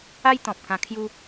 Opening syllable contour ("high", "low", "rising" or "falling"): high